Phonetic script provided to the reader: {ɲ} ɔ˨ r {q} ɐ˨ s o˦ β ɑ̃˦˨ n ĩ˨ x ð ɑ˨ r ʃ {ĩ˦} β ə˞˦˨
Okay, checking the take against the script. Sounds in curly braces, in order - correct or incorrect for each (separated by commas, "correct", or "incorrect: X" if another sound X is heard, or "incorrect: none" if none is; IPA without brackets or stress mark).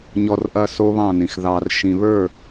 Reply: correct, incorrect: ʔ, incorrect: ĩ˨